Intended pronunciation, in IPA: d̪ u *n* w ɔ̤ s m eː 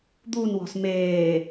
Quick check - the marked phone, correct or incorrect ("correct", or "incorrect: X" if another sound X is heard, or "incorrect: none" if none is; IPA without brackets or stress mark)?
correct